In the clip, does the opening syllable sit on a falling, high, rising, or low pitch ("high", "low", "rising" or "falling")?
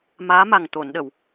rising